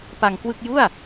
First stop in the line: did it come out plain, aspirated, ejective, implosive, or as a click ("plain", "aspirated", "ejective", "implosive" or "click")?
plain